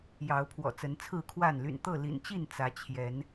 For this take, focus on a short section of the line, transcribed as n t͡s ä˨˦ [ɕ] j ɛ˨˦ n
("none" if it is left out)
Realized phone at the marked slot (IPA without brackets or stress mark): t͡ɕʰ